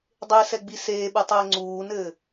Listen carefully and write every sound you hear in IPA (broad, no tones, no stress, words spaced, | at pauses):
dˤesɛ ɡ͡biseːɓɨ tˤɘːŋ͡ǀuːnɘː